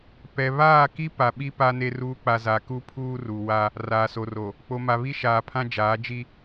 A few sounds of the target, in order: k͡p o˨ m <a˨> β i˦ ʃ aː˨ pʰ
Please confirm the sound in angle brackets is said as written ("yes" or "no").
yes